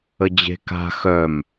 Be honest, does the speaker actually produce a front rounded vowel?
yes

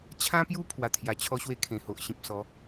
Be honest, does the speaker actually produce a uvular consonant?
no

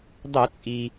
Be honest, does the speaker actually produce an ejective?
yes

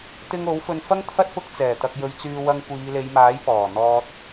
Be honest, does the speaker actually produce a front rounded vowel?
yes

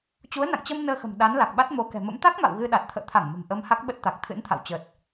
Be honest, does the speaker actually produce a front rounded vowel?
no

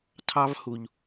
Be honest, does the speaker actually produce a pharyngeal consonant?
no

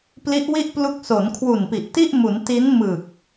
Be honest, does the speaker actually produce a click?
no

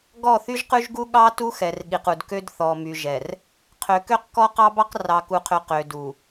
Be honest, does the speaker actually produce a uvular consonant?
yes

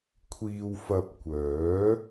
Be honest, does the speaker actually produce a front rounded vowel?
yes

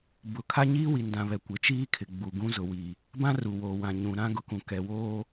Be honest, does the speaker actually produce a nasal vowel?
yes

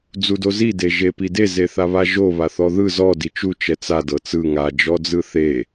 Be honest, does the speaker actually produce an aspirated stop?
no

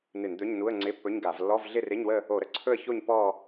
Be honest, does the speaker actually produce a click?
yes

